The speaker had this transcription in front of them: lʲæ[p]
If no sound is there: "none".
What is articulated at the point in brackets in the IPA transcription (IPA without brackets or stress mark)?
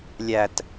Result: t